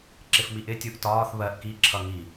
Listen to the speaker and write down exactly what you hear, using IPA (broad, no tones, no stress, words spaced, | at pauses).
ǁɪfmiʔɪ tʲuʔtɒːθ βɜʔ kiǁʰʌ ŋi